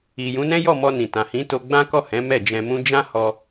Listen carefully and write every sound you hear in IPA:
i˨ j ũ˨˦ n ɛ̃˦ j ɔ˦˨ m ɔ˧ n ĩ˨ t ã˨ h ĩ˨˦ t o˧ ɡ͡b ã˦ k ɔ˦˨ h ɛ̃˨˦ m ɛ˦˨ d͡ʒ ɛ̃˧ m ũ˦ d͡ʒ ã˦ h ɔ˧

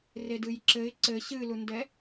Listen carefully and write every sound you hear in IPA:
r e d ɨ j ǁ ɘ ɪ̯ ǀ ɘ ɕ ɨ l u n d ɛ

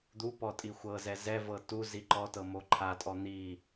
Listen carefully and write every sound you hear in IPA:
d̪ u p ɔ tʼ i xʷ ɤ z ɛ z ɛ v ɤ t u z i ǃ ɔ t ɤ m o ǃʰ a tʼ ɔ n̪ i

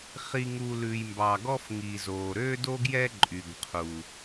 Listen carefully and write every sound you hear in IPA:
χ i˨ ŋ u˨ l ʉ˨ j m b ɑ˨ ɡ ɔ˦ f ŋ i˨ z o˨ ɾ ø˦ d o˦ ɡ j ɛ˦ ǃʼ y˨ ɡ qʰ u˨

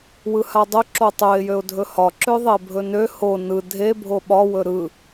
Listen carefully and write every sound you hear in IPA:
w ɯ h a dˤ ɵ ǁ o tˤ ø ɪ̯ j ø ʊ̯ dʱ ɵ h ɒ ǁ ø ðˤ e bʱ ɵ n ø h o n ɯ dʱ e bʱ o ɓ ɒ w ɵ ɾ ɯ

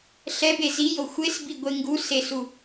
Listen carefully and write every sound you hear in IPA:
ɬ ɛ b e z i j o xʷ e s b i ɡʷ e ŋ ɡ u s e s u

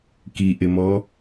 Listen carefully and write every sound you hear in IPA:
k i ʔ ɪ m ɔ

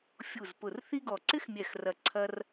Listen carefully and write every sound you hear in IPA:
fʲ u˧˩ z p ʊ˧˩ r θ i˥ ɡ ɔ˧˩ ǀ ɪ˥ x mʲ ɛ˧˩ x r ɐ˧˩ ǀʰ ɐ˥ r

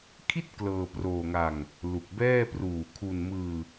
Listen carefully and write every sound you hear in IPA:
kʰ i˥˩ t̚ k l ɤː˧ p r oː˧ ŋ a˧ ŋ | l u˨˩ k̚ b ɛː˥˩ p r uː˨˩ kʰ u˧ n m ɯː˧

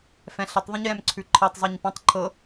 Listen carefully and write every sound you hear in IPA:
f ɛ̃ ɬ ə tˤ ðˤ ə̃ ɲ j ɛ̃ m ǀʰ ʉ ǃʰ e tˤ zˤ ɤ ɲ p ɔ̃ tˤ ǃʰ ɤ

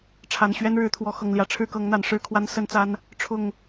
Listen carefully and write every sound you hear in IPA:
ʈ͡ʂʰ a˨˩ n ɕ ɥ ɛ˦ n ɻ ɻ̩˨˦ t̪ʰ w ɔ˨˦ x ɤ˨˩ ŋ l j ä˨˦ ʈ͡ʂʰ ɻ̩˥˨ k ɤ˨˦ ŋ n̪ a˨˩ n ʂ ɻ̩˥˨ kʰ w a˦ n s ə˦ n t͡s a˦ n | ʈ͡ʂʰ ʊ˥˨ ŋ

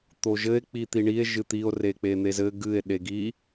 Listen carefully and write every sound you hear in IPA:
t̪ o ʒ ɘ e̯ k͡p i t̪ i ɳ i e̯ ʒ ɨ t̪ i o̯ r e k͡p e n̪ e z ɘ ɡ ɨ e̯ ɗ e ɡ i

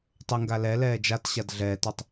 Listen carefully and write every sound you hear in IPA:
tˤ ʏ ŋ ɡ a l ɛ l ɛː d͡ʒ a t ɕ a d ɮ ɛː t ø tˤ

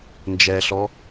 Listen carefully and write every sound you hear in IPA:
n d͡ʒ ɛ ɬ ɔ

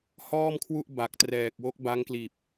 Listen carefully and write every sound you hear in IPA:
h ɔː˥˩ m kʰ w u˥˩ ʔ b a˨˩ k̚ t r ɛː˨˩ k̚ w o˦˥ k̚ b a˦˥ ŋ k l iː˨˩ p̚

